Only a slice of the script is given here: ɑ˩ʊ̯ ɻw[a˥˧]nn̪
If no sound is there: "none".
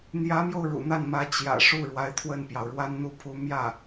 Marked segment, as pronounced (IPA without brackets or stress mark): a˥